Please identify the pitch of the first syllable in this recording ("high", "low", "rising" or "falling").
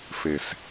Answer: low